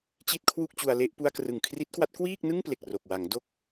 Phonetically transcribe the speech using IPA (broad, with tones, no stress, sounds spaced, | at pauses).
t͡ɕ i˥˩ t̚ kʰ w u˥˩ k̚ t͡ɕ u˧ a̯ l e˥˩ ʔ p u˧ a̯ k r ɯ˨˩ ŋ kʰ r i˦˥ t̚ k w a˦˥ t̚ k w iː˥˩ k̚ n ɯ˥˩ ŋ p l e˨˩ k̚ r o˨˩ k̚ w a˩˦ ŋ d o˦˥ k̚